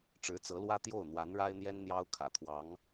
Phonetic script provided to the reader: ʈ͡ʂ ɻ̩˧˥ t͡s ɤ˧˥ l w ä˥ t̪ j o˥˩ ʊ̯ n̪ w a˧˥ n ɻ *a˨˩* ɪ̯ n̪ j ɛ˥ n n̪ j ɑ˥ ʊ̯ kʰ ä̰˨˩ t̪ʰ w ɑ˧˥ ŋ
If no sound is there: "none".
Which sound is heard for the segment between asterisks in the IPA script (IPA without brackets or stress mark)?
a˥